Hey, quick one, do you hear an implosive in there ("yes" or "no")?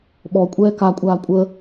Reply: yes